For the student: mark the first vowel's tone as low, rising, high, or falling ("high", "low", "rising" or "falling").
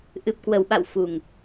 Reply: low